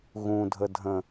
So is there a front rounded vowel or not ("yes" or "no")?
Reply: no